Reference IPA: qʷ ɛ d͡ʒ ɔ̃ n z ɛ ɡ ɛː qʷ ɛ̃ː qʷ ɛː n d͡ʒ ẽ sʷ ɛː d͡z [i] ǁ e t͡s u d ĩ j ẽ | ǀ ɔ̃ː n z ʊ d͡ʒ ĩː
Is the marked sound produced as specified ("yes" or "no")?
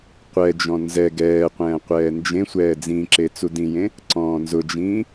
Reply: no